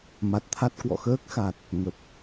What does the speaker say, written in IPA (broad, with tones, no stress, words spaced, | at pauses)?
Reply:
ma˨˩t̚t̪ʰa˦˥t̚ kwɔ̰˧˨xəː˦˥k̚xa˨˩t̚ | ŋə˨˩p̚